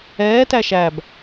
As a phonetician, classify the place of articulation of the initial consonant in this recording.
alveolar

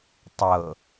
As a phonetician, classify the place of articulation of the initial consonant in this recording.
alveolar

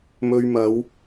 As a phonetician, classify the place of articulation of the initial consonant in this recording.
labial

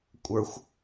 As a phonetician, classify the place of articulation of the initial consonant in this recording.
velar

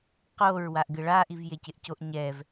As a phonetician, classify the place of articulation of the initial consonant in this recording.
uvular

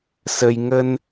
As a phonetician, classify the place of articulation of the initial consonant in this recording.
alveolar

